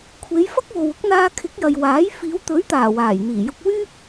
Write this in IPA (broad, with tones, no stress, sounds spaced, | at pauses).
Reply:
kʷʰ e˨˧ j f ɐ˥ k̚ w o˨ w ʊ˥ k̚ n̪ aː˧ kʰ ɪ˨˥ k̚ j ɐ˨ j w aː˨˥ j f iː˨˧ w t̪ ɵ˨˥ ɥ t̪ aː˨˩ w aː˨˩ j n̪ iː˨˩ j ʊ˧ k̚ w yː˥ p̚